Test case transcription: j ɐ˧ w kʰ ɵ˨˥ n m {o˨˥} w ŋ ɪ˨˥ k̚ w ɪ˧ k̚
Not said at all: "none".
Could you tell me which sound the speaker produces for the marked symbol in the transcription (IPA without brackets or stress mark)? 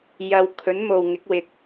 o˨